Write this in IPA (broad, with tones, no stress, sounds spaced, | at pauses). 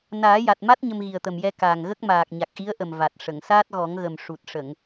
n aː˨˩˦ j a˨˩ t̚ m a˦˥ t̚ ɲ ə˧ m ɣ i˨˩ ə̯ t̪ ə˨˩ m j ɛ˧ k aː˨˩ ŋ ɣ ə˦˥ k̚ m aː˨˩ k̚ ɲ a˨˩ k̚ ʔ i˧˥ ə̯ ʔ ə˨˩ m v a˨˩ t̚ ʂ ə˨˩˨ ŋ s aː˦˥ t̚ ɣ ɔ˨˩˦ ŋ ɣ ə˨˩ m ʂ u˨˩ t̚ ʂ ə˨˩˨ ŋ